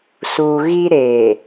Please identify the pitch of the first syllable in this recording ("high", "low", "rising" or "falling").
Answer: low